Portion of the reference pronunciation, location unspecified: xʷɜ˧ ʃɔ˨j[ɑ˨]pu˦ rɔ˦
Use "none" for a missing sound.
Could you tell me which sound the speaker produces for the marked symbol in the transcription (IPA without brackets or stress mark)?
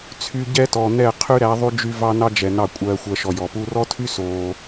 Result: ɔ˨